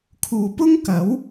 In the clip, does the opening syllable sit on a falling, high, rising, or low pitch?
low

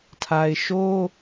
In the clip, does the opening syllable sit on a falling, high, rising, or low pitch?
low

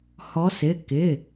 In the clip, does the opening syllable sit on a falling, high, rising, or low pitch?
rising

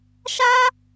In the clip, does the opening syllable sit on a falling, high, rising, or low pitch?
high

